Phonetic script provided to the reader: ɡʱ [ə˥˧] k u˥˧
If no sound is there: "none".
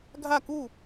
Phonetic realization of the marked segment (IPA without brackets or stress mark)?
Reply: a˥˧